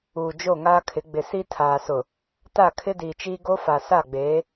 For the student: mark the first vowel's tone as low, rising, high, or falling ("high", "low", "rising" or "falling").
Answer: low